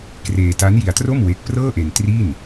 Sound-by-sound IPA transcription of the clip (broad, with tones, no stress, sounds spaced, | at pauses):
k r eː˧ t a˦˥ n j i˧ a̯ t r o˥˩ m w e˦˥ k̚ p r ɤː˥˩ ʔ e˧ n t r i˥˩ n